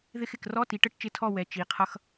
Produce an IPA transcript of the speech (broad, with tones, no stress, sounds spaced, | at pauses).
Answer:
ð ɪ˧˥˧ x ɪ˩˧˩ k r ɔ˧˥˧ t i˩˧ ʈ ə˥˨ ʈ t͡ʃ ɪ˧˥˧ tʰ ɔ˥˨ w ɛ˩˧˩ t͡ʃ i˩˧ qʰ ʌ˧˥˧ x